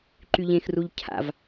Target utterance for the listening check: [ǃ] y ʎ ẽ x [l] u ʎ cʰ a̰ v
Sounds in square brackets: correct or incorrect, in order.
correct, incorrect

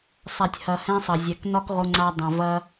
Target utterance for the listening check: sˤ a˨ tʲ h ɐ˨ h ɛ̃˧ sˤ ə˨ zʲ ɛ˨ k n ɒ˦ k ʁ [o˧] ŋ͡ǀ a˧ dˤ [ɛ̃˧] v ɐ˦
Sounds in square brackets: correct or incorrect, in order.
correct, incorrect

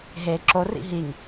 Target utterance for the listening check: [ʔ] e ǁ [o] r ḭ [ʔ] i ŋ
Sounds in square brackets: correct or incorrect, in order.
incorrect, correct, incorrect

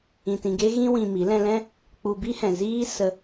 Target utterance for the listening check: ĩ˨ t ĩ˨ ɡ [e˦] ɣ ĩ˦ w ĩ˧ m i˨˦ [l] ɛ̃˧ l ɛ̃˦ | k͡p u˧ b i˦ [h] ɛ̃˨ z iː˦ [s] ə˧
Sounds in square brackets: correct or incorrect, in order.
correct, correct, correct, correct

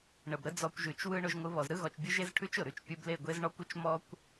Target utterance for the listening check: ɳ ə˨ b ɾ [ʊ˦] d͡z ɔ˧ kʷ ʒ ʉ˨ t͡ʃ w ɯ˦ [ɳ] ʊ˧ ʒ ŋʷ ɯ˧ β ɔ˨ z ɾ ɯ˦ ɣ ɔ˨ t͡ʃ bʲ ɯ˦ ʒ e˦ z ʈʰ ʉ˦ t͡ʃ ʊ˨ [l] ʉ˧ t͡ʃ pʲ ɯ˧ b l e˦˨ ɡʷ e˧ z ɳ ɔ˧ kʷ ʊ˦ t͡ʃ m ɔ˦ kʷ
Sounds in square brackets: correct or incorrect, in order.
incorrect, correct, incorrect

